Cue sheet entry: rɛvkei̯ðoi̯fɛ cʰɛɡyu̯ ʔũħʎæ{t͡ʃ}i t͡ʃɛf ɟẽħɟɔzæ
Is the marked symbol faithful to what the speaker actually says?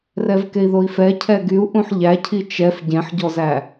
no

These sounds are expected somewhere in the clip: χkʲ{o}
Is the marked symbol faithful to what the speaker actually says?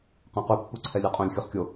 yes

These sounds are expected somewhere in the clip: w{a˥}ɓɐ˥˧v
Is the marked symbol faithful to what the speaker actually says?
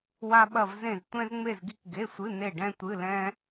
yes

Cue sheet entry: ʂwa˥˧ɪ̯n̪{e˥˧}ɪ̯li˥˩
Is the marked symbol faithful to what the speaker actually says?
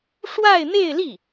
yes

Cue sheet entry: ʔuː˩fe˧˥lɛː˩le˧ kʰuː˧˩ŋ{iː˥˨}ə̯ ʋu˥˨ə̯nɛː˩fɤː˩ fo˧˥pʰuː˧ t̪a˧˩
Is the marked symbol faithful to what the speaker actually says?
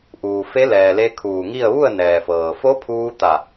no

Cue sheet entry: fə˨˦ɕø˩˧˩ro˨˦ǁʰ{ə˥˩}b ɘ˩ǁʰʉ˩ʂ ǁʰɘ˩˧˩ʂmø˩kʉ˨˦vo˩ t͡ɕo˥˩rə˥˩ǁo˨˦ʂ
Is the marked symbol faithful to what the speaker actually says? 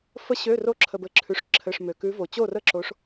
no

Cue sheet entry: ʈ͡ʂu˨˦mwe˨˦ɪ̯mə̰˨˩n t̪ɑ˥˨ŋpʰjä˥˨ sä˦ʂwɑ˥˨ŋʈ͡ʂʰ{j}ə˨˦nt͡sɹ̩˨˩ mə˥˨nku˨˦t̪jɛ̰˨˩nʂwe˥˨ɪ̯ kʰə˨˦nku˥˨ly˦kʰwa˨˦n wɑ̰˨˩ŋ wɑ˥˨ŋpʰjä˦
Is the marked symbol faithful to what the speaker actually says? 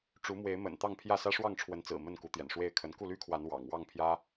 no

